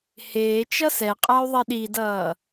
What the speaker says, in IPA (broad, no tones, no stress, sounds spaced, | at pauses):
h eː t͡ʃ ʌ s ɛ qʼ a y̯ ðˤ ɛ ɗ i d ʌː